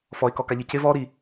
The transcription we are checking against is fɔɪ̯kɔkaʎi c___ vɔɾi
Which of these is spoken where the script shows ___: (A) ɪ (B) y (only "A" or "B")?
A